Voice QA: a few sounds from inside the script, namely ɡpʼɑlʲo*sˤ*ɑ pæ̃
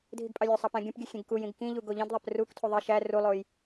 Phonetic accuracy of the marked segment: correct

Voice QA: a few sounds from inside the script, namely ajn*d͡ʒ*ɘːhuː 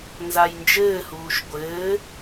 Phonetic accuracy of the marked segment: correct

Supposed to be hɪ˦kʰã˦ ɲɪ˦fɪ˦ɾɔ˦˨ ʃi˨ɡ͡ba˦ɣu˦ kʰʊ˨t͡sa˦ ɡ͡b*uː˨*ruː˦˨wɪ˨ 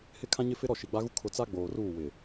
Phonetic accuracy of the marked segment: incorrect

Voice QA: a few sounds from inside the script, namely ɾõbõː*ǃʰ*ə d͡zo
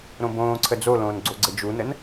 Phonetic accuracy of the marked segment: incorrect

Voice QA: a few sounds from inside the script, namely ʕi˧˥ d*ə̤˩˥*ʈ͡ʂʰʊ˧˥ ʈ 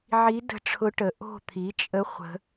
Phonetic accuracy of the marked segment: incorrect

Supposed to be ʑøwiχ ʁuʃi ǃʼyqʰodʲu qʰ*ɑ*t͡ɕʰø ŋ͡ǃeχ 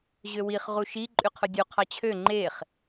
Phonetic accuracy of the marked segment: correct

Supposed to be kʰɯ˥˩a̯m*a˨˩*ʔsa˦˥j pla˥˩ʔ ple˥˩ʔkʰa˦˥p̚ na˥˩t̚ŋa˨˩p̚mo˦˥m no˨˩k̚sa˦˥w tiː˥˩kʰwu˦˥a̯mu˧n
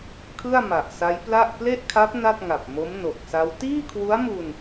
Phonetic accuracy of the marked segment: correct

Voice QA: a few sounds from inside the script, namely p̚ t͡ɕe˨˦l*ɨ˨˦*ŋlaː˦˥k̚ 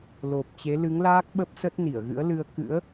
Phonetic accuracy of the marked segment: correct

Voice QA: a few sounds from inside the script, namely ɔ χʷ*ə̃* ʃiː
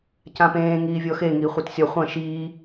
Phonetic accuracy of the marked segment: incorrect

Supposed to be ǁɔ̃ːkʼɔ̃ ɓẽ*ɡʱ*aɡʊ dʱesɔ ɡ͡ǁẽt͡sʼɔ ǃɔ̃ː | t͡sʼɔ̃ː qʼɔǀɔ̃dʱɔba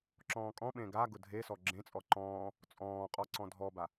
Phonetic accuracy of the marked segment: incorrect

